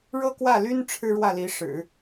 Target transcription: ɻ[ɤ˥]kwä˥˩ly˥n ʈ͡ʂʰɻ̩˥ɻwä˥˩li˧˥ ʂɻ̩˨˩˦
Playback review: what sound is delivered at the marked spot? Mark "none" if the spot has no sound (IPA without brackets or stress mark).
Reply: ɤ˥